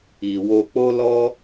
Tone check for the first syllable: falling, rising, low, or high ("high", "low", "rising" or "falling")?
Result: low